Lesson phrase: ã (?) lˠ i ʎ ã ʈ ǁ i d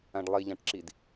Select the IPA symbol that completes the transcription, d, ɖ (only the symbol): ɖ